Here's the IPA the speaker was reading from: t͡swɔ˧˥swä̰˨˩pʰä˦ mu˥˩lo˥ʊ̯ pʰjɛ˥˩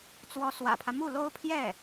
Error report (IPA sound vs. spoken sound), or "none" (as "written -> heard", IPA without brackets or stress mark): none